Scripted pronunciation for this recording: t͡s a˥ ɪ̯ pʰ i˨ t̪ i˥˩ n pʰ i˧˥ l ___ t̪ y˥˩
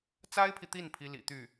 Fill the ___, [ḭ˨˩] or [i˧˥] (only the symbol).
ḭ˨˩